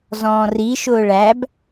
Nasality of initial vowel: nasal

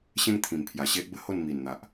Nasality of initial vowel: nasal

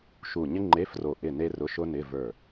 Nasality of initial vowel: oral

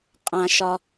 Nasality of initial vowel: nasal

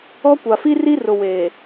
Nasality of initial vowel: oral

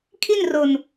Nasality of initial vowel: oral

